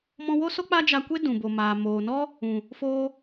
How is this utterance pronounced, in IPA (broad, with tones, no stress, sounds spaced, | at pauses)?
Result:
m ɔ̃˧ w o˦ s o˦ k͡p a˦ d͡ʒ a˧ kʷ e˦ d ũ˨ b o˨ m aː˨ m oː˨ n ɔ˦ | ũ˨ | f oː˧